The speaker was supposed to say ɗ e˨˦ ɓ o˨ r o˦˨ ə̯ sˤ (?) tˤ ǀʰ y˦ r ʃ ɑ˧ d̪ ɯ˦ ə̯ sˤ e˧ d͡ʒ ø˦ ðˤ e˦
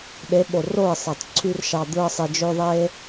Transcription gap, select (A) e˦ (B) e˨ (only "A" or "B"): B